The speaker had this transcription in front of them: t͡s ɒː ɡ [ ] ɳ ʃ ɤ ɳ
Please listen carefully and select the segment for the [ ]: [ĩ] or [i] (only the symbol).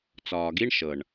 i